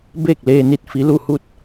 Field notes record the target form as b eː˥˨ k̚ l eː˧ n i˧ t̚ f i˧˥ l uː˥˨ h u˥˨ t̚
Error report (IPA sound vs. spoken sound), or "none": uː˥˨ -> u˥˨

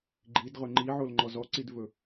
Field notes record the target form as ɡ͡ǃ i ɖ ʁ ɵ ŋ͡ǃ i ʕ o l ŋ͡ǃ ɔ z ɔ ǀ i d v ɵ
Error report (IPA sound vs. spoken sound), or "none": ɖ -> d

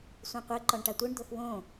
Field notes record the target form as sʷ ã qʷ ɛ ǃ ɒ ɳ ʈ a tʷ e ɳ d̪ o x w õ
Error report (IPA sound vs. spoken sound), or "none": none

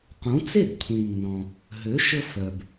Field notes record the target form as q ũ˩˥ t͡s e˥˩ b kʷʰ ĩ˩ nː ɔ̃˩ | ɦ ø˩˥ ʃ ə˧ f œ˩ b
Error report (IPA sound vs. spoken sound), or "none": none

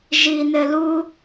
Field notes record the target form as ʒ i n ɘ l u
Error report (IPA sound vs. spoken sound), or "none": none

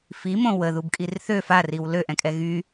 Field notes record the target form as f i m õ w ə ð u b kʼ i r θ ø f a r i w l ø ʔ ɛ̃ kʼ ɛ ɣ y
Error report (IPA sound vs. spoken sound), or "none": none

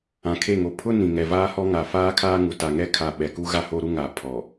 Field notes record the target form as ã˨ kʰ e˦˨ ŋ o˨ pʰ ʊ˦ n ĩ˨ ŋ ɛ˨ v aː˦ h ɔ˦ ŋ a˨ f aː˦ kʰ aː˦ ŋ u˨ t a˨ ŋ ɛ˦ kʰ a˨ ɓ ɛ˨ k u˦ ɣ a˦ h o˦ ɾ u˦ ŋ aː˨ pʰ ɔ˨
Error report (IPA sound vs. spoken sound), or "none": none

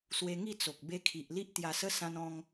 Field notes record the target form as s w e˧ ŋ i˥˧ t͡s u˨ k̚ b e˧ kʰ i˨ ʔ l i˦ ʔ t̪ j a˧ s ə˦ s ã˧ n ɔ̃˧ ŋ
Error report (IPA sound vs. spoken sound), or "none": u˨ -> o˨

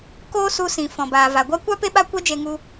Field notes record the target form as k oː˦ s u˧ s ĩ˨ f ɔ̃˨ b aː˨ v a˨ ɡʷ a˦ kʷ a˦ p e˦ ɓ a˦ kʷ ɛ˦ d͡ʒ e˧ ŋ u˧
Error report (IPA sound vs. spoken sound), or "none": none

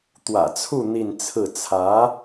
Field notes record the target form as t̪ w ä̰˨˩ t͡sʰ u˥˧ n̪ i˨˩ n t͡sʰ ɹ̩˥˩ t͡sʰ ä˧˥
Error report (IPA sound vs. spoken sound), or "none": i˨˩ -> i˥˧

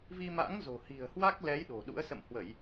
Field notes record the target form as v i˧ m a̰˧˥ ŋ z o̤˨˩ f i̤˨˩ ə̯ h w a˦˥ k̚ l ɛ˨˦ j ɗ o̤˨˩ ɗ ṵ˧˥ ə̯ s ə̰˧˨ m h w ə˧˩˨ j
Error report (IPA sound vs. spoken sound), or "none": f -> h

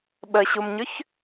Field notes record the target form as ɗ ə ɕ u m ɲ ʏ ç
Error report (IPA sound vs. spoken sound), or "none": ɗ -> ɓ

